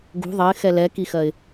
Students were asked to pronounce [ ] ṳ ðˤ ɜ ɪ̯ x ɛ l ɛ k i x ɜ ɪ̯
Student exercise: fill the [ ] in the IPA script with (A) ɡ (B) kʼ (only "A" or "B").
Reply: A